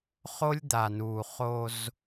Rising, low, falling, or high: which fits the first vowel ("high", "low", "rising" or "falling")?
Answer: high